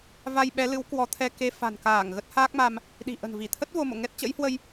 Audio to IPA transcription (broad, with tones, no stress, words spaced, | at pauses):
va˧jɓɛ˨˦lɨ˨˦w kwɔ˨˦t̪ʰɛ˧ ke˧ fa̤˨˩nkaː˧˩ŋ ɣə˦˥t̚haː˦˥k̚ma˧m | ɗi̤˨˩ʔə̤˨˩nvi˧˩t̪ʰə˦˥t̚ vo˧mo̰˧˨ ŋɛ˦˥t̚t͡ɕə̰˧˥jhwə˧j